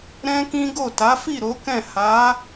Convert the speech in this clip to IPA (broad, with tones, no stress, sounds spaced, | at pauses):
ɾ ɛ̃˦ k ĩ˦ ɡ o˦˨ t a˨˦ f i˦˨ ɾ o˨˦ k ɛ̃˦˨ h a˨˦